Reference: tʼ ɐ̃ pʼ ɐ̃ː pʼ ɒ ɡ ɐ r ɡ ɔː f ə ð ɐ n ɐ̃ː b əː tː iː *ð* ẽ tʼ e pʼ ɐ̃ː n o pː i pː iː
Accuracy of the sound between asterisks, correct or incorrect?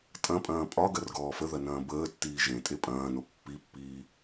incorrect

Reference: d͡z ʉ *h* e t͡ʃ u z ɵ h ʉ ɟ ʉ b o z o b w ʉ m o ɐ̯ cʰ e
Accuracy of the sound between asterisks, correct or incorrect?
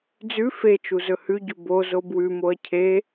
incorrect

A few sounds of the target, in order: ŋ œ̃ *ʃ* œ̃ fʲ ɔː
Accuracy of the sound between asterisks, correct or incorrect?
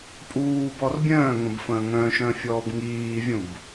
correct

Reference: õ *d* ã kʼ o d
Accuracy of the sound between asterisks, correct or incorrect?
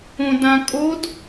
correct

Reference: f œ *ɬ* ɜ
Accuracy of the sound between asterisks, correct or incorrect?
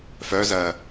incorrect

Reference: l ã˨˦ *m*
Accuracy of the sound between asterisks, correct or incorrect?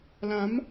correct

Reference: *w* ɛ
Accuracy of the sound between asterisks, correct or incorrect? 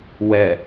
correct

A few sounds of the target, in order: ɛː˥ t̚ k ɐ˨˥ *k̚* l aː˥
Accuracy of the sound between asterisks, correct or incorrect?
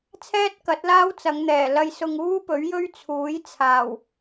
incorrect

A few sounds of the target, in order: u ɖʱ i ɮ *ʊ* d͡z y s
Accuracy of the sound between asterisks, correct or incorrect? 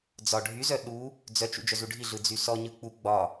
incorrect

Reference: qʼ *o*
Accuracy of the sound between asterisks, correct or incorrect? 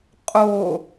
correct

